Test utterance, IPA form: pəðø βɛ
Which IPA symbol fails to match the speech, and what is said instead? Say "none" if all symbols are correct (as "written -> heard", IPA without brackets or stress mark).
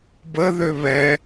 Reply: p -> b